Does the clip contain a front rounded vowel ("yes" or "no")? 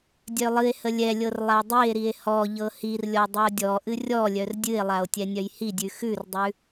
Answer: yes